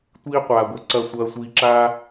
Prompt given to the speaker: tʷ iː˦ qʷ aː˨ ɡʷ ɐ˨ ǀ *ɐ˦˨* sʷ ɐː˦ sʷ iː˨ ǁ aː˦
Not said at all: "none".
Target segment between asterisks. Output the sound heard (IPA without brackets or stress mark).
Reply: ɐ˦˨